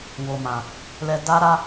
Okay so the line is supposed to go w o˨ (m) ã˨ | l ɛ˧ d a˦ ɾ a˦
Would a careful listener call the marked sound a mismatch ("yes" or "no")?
no